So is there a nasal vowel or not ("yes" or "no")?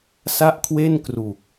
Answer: no